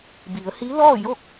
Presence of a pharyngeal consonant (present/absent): absent